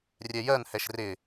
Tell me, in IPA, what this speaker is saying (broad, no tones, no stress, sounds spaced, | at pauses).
rʲ ɛ j ɜ n h ɛ ʃ r ɪ